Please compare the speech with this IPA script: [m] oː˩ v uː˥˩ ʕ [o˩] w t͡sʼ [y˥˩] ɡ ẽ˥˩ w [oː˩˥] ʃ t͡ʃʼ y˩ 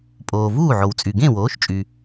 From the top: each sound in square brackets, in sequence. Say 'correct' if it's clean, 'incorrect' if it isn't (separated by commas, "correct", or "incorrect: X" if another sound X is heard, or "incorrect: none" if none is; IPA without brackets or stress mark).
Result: incorrect: pʼ, correct, incorrect: y˩, correct